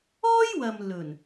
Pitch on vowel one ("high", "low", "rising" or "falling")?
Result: high